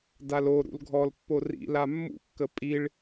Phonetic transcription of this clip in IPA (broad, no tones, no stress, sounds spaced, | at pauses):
d a l o ɾ ṵ l ɡʱ ɔ l pː o r ḭ l a mː ṵ kː ə pʼ i ɭ